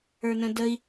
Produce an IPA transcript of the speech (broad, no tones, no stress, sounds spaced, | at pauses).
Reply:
ə˞ n ə̃ d ə i̯